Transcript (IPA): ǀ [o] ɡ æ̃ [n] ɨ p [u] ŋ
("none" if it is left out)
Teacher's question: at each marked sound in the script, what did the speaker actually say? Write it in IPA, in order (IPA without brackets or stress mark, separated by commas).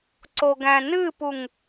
o, n, u